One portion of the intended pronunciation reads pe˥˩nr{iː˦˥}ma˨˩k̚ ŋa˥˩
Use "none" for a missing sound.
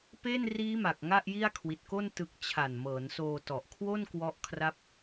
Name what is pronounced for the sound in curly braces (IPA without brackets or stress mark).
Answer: iː˦˥